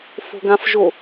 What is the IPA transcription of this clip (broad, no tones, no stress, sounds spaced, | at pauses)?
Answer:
f o̤ ɡ ã f ʒ o